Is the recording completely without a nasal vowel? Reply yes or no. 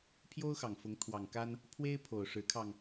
yes